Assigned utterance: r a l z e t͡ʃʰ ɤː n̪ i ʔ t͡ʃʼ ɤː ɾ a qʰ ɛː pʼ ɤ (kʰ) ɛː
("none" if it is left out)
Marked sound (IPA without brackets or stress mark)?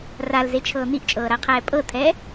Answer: tʰ